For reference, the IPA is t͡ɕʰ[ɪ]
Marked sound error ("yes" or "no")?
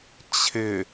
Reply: no